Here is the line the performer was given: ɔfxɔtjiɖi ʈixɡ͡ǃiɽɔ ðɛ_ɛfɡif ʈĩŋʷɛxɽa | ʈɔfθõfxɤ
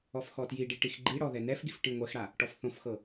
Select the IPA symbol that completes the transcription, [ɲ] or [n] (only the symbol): n